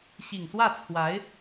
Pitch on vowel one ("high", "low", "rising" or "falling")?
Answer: low